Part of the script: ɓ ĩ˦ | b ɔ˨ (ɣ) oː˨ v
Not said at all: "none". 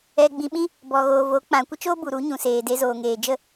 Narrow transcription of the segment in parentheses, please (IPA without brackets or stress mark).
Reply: ɣ